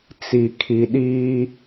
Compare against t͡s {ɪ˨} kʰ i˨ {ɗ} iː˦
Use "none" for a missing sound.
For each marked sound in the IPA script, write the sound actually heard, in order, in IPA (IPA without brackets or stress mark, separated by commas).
i˨, ɗ